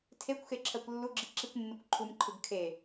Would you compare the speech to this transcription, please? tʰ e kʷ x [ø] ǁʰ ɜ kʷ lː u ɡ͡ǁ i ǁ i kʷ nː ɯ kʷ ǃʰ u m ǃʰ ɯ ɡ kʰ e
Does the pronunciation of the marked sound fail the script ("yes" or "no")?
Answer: yes